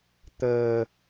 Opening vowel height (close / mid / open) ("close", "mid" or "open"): mid